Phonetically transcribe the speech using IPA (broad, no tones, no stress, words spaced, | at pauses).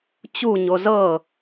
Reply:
t͡ɕuɲo zɤ